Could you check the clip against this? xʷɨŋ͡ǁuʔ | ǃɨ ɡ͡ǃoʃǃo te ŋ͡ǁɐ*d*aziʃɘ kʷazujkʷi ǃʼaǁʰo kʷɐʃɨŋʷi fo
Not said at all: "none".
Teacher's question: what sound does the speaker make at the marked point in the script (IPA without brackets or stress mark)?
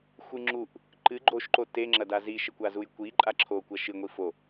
d